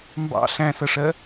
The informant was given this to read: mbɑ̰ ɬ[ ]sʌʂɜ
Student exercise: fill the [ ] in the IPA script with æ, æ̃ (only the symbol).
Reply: æ̃